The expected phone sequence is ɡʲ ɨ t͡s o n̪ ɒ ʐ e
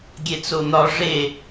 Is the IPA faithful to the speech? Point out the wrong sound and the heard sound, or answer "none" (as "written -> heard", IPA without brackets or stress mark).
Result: ɨ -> e